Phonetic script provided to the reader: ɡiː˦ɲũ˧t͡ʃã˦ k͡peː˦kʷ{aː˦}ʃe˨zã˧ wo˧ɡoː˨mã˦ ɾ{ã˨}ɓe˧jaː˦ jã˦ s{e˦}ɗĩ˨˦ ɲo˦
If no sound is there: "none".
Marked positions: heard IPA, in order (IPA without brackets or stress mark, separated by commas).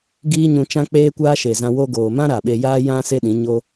aː˦, a˨, e˦